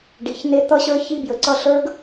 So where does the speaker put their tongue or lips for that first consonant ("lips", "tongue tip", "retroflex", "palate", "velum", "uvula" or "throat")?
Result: retroflex